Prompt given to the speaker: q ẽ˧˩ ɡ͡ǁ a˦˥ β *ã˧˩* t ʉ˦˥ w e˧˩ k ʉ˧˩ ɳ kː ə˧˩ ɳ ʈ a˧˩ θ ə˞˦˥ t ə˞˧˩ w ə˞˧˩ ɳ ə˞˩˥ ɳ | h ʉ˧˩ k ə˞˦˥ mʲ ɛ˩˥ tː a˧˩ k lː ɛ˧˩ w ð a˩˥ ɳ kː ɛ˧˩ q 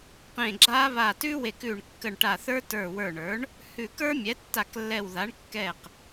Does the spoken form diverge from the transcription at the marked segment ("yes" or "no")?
yes